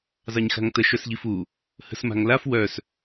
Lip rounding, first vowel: unrounded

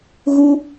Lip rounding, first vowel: rounded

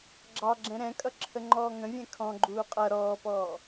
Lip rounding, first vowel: unrounded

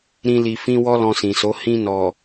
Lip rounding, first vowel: unrounded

